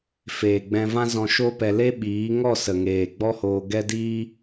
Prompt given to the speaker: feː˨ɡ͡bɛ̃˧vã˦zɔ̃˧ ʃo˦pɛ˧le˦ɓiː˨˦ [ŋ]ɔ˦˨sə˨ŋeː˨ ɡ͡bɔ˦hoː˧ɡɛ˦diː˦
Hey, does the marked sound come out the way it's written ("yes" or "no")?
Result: yes